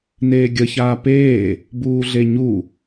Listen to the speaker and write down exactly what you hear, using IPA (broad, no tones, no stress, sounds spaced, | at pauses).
n eː ɡʲ ə ç aː p eː | b uː ɮ e ɲ u